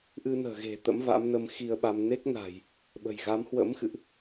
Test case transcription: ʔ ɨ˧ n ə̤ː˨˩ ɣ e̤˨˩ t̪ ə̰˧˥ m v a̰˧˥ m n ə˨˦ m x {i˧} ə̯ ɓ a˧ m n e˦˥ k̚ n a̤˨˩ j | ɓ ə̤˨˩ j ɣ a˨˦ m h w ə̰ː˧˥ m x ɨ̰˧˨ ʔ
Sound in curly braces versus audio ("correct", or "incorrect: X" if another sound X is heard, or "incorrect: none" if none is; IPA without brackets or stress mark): correct